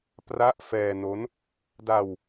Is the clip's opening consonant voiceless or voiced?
voiceless